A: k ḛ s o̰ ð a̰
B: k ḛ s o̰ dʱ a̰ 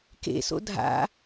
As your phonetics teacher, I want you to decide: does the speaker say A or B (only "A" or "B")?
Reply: B